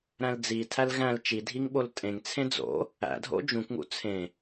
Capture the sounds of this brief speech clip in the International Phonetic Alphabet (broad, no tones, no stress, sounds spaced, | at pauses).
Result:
ɾ æ̃ l d͡z i tʰ æ l ɣ æ̃ l t͡ʃ i dʱ i ŋ ɓ o l tʼ ẽ ŋ t͡sʰ ẽ d͡z o̰ | æ̰ dʱ o̰ d͡ʒ ũ k ŋ ṵ t͡sʰ ẽ